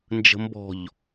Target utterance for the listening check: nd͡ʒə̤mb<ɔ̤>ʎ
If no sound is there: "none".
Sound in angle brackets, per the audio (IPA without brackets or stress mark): ɔ̤